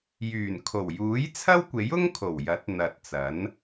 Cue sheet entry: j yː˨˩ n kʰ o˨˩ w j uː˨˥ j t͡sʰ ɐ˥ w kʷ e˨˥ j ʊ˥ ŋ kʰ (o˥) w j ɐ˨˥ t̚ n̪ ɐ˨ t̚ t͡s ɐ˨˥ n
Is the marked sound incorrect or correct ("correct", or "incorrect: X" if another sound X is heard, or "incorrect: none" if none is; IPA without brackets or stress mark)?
incorrect: o˨˩